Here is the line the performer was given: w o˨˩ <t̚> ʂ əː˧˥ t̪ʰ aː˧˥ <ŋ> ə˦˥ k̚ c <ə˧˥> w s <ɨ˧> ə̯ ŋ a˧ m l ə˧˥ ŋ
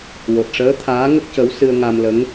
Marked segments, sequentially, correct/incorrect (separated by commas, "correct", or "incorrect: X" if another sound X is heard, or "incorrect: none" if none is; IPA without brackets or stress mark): correct, correct, correct, correct